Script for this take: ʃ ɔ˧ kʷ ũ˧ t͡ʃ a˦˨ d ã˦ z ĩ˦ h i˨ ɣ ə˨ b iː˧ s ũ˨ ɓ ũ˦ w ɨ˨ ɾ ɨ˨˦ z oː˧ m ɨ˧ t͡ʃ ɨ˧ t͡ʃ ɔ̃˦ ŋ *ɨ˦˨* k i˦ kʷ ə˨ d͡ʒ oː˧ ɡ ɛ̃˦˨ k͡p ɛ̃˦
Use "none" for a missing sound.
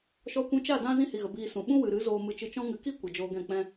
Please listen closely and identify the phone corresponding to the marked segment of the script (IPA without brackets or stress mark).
ɨ˨˦